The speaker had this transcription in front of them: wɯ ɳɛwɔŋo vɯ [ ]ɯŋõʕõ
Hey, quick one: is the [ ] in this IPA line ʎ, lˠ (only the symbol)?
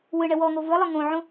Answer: lˠ